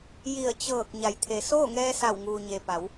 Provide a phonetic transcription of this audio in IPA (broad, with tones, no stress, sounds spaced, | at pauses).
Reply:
j i˧˩ ə̯ t͡ɕ ɤː˧˩ k̚ ɲ a˩˧ j t̪ʰ e˩˧ s oː˥˨ ŋ ɛː˧ s a˧˩ w ŋ uː˩ ɲ e˩ p a˩˧ w